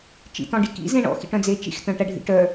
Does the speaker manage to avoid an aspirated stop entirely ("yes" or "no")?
yes